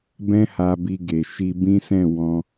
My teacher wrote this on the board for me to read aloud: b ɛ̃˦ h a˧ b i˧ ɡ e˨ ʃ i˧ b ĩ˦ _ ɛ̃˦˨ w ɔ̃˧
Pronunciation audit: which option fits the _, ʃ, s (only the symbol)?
s